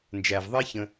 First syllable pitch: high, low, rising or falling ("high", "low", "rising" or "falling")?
low